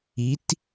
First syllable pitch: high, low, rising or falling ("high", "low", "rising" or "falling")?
rising